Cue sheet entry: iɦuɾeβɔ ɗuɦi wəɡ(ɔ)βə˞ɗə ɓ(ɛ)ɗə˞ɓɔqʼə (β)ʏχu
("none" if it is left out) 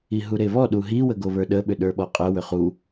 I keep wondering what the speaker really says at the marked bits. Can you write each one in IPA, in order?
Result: o, ʏ, w

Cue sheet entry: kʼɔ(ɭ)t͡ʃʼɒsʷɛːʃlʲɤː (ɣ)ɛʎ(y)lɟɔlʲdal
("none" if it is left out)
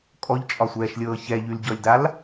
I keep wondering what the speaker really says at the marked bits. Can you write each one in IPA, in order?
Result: ʎ, ç, y

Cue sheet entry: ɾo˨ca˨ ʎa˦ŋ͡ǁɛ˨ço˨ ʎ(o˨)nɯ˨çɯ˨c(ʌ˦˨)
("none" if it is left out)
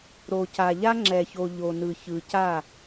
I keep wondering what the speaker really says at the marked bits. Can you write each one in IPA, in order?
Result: o˨, a˦˨

